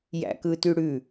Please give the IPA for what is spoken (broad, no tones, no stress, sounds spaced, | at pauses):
j æ̰ k ɯ t y ɽ ʉ